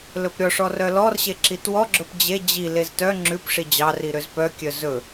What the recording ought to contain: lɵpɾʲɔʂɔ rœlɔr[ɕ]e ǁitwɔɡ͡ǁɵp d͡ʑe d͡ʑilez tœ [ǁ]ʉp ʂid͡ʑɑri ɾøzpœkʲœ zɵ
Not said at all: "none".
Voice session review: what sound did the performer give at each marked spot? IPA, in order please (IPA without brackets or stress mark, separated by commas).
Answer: ɕ, ŋ͡ǁ